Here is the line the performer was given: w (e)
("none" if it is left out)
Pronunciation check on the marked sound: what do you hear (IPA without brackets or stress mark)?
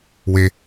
e